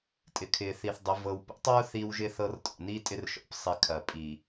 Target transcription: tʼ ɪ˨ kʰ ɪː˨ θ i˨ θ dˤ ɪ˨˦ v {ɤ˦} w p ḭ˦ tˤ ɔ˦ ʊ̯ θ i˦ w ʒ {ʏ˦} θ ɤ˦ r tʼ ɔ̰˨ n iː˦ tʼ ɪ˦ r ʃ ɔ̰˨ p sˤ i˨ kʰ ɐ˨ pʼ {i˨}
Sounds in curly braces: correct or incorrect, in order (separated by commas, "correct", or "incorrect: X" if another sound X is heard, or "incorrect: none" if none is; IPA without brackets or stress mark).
incorrect: ɤ˨, incorrect: ɪ˦, correct